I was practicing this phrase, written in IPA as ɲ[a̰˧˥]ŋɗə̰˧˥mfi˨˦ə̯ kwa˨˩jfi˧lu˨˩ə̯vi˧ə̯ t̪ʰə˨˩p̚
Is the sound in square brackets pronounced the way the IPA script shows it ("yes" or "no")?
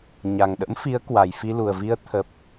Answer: no